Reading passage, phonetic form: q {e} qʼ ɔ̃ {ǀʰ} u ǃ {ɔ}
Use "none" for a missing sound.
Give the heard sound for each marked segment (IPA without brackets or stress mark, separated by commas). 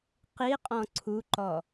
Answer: i, ǀʰ, ɔ